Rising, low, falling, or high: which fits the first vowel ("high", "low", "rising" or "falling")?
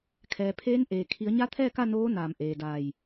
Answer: low